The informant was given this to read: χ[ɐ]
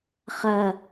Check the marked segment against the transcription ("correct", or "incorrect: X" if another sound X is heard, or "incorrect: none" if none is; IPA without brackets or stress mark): correct